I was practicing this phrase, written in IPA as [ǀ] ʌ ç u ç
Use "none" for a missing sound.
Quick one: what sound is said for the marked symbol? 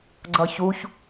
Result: ɡ͡ǀ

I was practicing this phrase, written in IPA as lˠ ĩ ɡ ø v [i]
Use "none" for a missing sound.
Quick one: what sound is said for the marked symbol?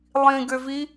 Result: i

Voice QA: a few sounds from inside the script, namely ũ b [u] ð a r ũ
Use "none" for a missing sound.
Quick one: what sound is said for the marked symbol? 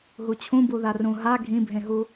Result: u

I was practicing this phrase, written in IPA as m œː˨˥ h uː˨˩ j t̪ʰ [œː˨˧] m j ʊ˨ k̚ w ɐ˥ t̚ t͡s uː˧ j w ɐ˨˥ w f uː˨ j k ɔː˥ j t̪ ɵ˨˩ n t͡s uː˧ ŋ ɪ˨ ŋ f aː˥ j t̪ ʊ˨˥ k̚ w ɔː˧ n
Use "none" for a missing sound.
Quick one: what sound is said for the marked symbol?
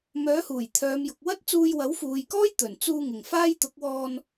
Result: œː˨˧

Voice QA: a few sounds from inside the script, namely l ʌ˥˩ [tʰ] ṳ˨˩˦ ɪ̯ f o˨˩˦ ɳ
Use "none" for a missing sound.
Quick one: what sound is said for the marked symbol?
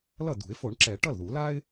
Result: d̪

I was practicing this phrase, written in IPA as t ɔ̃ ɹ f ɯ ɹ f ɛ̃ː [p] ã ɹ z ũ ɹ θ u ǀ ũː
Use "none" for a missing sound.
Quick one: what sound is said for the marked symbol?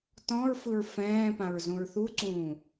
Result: p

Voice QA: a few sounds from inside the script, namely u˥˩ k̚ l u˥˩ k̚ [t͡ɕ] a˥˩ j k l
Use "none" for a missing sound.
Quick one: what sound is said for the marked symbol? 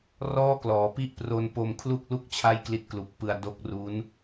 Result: t͡ɕʰ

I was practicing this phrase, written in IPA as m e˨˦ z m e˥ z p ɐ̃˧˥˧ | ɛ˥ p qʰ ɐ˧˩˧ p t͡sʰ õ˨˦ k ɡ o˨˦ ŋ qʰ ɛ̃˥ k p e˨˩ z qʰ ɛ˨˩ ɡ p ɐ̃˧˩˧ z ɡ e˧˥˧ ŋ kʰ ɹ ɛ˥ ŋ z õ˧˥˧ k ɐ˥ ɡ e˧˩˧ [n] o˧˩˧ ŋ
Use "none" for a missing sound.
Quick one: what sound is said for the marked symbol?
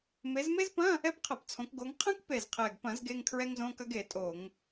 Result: tʼ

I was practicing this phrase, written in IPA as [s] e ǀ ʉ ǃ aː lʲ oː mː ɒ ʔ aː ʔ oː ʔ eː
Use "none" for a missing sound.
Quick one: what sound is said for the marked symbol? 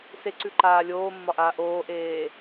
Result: s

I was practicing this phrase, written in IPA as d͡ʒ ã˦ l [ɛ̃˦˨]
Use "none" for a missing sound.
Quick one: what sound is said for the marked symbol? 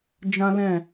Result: ɛ̃˦˨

